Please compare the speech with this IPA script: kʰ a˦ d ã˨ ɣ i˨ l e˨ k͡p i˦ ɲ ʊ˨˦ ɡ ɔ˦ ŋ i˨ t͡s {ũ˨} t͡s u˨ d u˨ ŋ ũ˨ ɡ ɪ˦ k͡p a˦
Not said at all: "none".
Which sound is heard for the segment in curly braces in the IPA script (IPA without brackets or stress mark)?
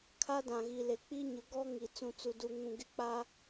ũ˨